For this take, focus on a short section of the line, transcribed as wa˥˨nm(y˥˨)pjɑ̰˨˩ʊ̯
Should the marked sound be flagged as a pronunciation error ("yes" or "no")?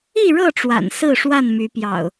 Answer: yes